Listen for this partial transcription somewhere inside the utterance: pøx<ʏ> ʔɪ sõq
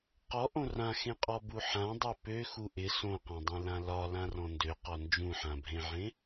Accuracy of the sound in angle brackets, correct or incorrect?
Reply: incorrect